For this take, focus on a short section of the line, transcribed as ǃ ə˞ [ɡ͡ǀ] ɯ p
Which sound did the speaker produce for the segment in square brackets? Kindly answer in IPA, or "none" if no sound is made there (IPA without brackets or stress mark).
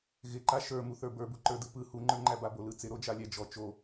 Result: d